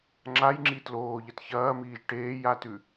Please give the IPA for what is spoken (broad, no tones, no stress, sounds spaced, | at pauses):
ŋ͡ǁ a j ŋ͡ǁ i t l oː ʎ ɐ t ç ɐː m iː ʒ ʈ eː j a t ʉ